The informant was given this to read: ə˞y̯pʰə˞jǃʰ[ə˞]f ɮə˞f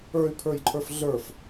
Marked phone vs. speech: correct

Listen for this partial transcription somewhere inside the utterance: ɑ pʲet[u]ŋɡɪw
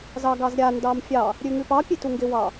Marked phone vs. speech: correct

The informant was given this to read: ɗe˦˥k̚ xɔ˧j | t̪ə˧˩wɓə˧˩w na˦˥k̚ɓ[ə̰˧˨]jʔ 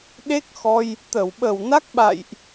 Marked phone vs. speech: incorrect: a̰˧˨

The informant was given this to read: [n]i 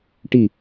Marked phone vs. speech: incorrect: ʈ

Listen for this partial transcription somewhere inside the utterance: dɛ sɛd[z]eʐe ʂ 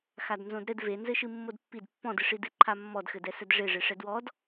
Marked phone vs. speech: incorrect: ʐ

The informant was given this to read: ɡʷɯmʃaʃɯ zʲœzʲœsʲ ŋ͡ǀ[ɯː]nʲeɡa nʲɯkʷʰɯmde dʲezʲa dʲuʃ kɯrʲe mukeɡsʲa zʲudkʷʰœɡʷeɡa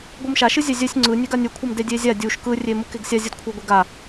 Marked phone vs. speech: incorrect: ɯ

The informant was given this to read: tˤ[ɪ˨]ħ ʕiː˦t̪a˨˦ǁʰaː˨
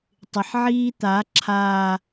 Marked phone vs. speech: correct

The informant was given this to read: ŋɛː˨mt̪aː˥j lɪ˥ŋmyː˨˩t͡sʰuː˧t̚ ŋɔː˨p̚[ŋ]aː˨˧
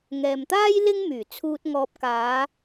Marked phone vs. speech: incorrect: k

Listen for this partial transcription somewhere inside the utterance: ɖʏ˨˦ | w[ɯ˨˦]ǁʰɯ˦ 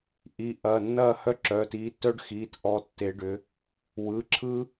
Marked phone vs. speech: incorrect: ɯ˩˧˩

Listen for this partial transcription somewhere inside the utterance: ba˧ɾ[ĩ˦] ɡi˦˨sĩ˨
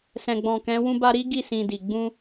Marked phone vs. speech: incorrect: i˦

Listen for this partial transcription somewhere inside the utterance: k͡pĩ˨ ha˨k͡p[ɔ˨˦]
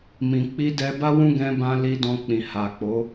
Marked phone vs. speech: incorrect: o˨˦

